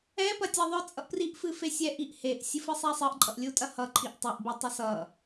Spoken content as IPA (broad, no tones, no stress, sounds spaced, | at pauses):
ɛ p ɐ tʲ ɛ ðˤ œ t͡sʼ ʌ ʔ p r i ʔ f ɨ f e sʲ ɛ ʔ i ʔ h e ʔ sʲ ɨ f ɨ sˤ ɛ sˤ ɨ ʔ ǃʼ ʌ ʔ lʲ u tʼ ɐ h ʌ ǃʰ i ʔ tˤ i ʔ b i tˤ ʌ s ʌ